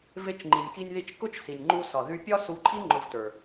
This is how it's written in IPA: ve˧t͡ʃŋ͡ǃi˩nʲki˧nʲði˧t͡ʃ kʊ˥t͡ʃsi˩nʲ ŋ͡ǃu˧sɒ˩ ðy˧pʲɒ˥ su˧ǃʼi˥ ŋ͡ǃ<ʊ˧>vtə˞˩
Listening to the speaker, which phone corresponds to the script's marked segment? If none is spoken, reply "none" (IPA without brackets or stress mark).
ʊ˧